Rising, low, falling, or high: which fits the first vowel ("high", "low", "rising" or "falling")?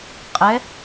rising